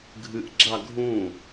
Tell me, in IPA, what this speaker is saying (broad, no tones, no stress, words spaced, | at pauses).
ɡʱɨʔɡ͡ǁa ɡʱũ